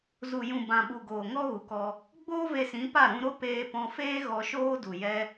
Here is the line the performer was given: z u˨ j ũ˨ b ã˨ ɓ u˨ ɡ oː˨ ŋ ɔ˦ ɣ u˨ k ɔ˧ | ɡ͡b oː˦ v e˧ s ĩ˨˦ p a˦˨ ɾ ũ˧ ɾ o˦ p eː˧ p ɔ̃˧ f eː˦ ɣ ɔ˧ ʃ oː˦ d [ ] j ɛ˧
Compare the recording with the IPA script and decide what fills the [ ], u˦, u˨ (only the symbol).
u˨